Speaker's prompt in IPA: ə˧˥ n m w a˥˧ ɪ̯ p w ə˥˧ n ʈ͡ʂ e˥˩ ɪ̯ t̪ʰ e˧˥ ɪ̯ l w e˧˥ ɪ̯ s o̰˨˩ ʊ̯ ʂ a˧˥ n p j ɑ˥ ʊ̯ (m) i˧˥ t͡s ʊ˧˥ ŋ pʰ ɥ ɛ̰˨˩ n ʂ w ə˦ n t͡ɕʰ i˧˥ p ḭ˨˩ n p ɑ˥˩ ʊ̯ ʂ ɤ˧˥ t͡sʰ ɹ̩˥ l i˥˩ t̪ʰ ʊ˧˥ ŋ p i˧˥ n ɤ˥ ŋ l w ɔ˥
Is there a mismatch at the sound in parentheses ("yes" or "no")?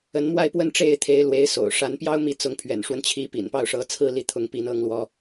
no